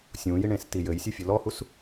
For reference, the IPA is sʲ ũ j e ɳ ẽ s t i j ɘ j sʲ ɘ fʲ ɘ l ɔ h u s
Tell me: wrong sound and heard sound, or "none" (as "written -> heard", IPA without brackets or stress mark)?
e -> i